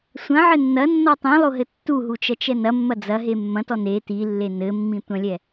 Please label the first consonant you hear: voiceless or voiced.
voiceless